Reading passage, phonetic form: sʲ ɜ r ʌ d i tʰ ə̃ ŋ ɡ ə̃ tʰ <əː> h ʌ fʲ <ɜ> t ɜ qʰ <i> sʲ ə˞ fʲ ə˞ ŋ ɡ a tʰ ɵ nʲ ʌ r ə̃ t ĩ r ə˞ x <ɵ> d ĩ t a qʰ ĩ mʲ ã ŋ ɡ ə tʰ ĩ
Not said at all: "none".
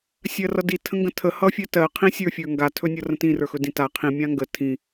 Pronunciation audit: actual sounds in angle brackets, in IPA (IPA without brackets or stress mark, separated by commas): ə, ɜ, ĩ, ɵ